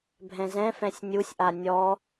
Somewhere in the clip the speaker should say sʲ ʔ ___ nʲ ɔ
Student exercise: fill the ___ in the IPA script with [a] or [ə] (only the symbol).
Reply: a